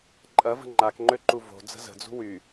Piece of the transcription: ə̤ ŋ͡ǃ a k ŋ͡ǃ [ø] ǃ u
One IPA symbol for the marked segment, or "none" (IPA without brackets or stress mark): ø